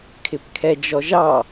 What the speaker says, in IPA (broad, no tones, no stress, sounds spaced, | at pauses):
kʰ ɪ p kʰ ɛ d͡ʒ ɔ ʒ ɑ